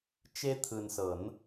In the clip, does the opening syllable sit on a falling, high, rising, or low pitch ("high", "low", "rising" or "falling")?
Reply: high